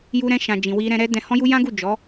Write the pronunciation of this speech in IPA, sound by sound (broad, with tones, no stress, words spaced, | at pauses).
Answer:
ju˧ɾɛ̃˧ʃã˨ d͡ʒĩ˨wi˧ɾɛ̃˧ɾɛ˦ dɛ̃˧hɔ̃˦ju˦ jã˦ɡu˦˨ d͡ʒɔ˨˦